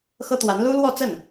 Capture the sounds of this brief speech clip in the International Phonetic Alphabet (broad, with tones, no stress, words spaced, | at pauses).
xɤ˥t̪wa˧˥n lu˥lwɔ˥˧t͡sə˥˩n